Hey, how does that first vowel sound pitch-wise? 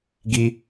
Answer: high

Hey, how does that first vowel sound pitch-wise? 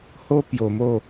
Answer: high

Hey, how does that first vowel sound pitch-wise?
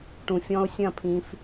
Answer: low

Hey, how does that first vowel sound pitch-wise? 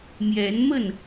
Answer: rising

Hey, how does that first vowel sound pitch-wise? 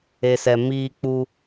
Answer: low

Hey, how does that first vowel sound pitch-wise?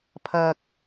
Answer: low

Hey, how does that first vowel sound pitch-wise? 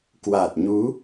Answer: low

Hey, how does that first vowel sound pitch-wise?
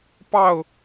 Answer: falling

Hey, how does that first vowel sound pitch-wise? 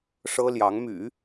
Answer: high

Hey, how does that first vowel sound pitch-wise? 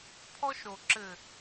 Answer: high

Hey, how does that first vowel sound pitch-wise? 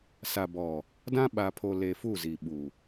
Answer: low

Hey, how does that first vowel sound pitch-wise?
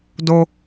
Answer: low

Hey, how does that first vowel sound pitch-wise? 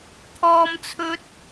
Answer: high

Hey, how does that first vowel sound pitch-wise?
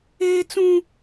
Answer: high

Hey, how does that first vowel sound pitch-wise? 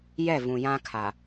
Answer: falling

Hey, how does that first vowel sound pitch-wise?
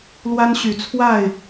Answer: high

